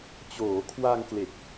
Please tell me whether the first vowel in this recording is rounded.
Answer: yes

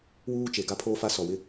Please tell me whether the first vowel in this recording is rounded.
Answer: yes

